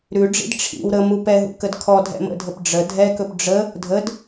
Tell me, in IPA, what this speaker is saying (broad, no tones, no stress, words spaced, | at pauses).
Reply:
ɾʉɖ͡ʐḭd ʈ͡ʂʰḭw ɾə mupɛɦṵ kədkʰɔ dʱɛ̰mə̰dʱəp ɖ͡ʐə dʱɛkɵp ɖ͡ʐə | dʱəd